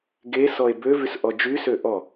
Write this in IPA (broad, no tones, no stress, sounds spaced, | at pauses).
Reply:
ɡ e s ɔ e̯ b ø v y s ʔ ɔ d͡ʒ y s ø ʔ ɔ